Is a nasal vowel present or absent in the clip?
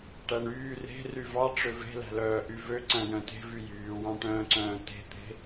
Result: present